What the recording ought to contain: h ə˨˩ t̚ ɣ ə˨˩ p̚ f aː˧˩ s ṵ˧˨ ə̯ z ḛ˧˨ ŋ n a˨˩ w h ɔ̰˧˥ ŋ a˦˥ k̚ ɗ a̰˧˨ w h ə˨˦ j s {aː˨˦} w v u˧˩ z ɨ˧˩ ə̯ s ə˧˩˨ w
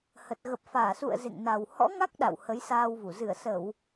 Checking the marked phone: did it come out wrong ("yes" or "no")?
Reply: yes